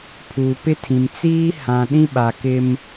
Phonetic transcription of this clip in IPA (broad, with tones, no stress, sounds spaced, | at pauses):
pʰ uː˨ p ɪ˦ tʰ ĩ˨ m t͡s iː˦ h ã˨ ɗ ĩ˦ ɓ a˨ k ɪ˦ m